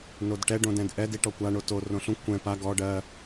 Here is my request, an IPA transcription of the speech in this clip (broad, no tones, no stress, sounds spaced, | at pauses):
n o d ʈ ɛ ɖ õ d ɛ̃ d ʔ ɛ d i ʈ ɔ kʷ a ɳ o t o r õ ɬ ũ kʷ ɛ̃ p a ɡ ɔ ɖ ɜ